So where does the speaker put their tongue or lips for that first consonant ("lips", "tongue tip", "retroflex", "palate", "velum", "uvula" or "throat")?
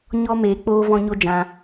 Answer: palate